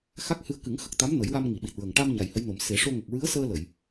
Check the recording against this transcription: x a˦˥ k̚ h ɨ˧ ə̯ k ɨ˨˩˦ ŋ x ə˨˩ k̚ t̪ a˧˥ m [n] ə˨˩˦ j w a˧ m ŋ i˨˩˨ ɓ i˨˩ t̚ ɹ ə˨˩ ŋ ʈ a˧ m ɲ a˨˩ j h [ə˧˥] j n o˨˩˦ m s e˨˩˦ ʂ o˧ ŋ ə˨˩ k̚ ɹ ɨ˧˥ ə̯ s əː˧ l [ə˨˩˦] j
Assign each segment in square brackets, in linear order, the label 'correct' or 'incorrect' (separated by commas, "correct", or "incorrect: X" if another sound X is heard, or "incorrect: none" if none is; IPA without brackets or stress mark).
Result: correct, correct, incorrect: ə˨˩˨